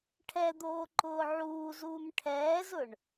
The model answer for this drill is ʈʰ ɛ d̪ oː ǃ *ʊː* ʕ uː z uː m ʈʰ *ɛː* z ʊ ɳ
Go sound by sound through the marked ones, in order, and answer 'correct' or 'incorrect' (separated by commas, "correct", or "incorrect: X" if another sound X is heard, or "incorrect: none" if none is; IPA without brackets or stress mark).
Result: correct, correct